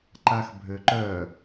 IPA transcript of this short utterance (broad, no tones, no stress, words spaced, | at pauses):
ǃaxbʱøǃœ